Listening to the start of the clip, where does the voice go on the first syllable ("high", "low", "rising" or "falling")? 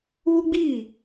high